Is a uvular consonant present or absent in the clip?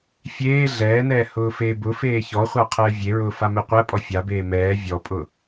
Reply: present